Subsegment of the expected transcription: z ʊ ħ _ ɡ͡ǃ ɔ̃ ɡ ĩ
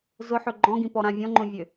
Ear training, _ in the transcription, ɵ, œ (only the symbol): ɵ